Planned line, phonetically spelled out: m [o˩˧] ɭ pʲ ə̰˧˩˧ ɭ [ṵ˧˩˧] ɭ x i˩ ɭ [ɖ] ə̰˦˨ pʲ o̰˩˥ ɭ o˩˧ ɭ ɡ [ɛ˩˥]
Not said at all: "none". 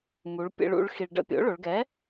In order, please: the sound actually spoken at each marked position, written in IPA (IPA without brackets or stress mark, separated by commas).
u˩˧, ṵ˧˩˧, ɖ, ɛ˩˥